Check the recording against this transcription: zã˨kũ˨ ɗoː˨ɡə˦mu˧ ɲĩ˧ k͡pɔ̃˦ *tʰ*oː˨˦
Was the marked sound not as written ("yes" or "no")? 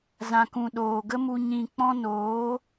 yes